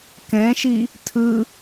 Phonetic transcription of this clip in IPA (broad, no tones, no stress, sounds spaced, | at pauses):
k ɛ̃ ʃ i | tʰ ɯ